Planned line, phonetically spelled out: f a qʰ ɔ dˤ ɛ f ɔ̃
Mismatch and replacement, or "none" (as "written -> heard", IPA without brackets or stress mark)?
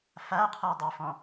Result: ɛ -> e